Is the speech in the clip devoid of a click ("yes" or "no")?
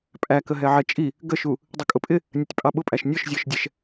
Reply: yes